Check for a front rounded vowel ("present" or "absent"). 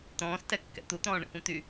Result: present